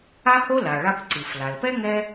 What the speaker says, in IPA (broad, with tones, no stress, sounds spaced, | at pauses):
a˥ h o˥ l a˩ ɭ a˧ p ǀ ɨ˩ f l a˩ l p ɛ˥ ŋ ɛ˥